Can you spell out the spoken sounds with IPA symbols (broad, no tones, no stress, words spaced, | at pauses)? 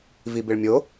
vibɪɭmʲo